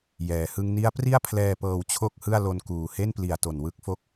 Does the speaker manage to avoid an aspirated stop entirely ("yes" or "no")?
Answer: no